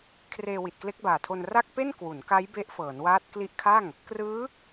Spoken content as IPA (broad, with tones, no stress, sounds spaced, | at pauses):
kʰ r eː˧ w i˨˩ t̚ k l e˦˥ k̚ b aː˨˩ tʰ o˧ n r a˥˩ k̚ p e˥˩ n k w u˩˦ n k a˦˥ j b e˦˥ ʔ f ɤː˩˦ n w aː˦˥ t̚ k l i˦˥ ʔ kʰ a˥˩ ŋ | k r ɯː˦˥